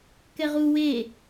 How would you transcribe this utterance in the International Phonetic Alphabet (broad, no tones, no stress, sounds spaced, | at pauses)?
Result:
k ɛ ʁ u w e